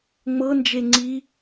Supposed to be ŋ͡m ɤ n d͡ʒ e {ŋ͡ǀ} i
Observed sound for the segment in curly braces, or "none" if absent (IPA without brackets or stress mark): ŋ͡ǀ